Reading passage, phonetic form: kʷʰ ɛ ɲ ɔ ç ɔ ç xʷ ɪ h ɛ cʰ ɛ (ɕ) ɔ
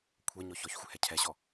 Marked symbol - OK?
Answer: yes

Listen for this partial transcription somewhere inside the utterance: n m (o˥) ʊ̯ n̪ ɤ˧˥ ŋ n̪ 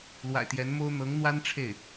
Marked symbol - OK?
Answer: yes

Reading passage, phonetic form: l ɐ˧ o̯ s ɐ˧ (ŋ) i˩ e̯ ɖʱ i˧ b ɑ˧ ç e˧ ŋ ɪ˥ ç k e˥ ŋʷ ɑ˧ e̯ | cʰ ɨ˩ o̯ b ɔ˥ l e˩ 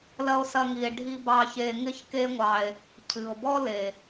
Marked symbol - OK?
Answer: yes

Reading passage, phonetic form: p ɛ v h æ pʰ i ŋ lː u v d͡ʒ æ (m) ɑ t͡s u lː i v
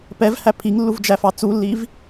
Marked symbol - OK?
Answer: no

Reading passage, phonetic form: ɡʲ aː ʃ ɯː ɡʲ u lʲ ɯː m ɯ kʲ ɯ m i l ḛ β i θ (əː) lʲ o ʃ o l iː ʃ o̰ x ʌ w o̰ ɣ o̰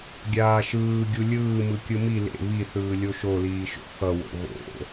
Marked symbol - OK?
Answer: no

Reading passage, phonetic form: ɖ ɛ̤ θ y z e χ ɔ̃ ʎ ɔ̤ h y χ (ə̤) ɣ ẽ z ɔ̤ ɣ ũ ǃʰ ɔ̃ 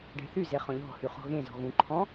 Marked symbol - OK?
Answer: no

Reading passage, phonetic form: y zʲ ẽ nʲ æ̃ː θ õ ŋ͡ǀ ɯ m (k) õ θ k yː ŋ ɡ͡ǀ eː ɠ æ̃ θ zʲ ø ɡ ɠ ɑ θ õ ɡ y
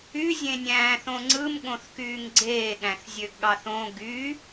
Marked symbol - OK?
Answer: no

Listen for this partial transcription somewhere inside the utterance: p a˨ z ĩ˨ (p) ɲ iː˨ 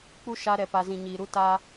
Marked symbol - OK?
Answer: no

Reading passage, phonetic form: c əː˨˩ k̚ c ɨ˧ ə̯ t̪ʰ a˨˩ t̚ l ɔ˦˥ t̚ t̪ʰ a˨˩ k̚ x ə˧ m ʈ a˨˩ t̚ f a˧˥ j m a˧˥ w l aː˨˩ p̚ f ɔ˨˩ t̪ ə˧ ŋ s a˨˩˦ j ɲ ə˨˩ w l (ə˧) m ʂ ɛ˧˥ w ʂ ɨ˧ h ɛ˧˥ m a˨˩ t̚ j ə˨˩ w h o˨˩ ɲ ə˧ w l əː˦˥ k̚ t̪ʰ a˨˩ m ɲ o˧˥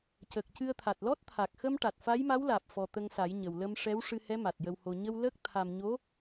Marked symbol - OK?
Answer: yes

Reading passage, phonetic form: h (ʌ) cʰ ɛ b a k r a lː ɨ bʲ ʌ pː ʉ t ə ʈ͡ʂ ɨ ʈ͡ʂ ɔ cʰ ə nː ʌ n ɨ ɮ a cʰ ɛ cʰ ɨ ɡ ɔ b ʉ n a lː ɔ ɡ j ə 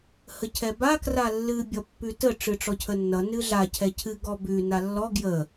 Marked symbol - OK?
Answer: no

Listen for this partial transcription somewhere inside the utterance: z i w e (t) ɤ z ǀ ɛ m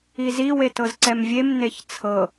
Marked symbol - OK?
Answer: yes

